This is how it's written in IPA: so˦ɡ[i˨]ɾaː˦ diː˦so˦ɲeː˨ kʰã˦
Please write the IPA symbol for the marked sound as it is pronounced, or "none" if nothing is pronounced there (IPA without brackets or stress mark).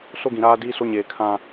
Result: ĩ˨